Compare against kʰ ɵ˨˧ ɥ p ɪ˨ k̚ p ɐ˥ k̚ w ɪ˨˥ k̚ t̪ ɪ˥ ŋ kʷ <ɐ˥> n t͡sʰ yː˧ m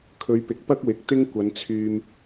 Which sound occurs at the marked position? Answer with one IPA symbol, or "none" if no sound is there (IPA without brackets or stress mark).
ɐ˨˧